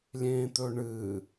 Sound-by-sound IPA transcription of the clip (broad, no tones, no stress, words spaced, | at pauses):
lʲẽːt̪ɵɳɨ